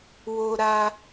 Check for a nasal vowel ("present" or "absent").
absent